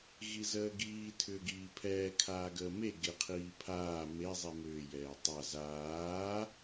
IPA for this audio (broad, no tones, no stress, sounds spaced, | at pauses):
ɣ i z əː ɡ iː tʰ ʏː ɡ iː pʰ ɛː kʰ aː ɡ əː m e ɡ e qʰ iː pʰ aː m e zˤ i m ʏː j ɛː tˤ a z aː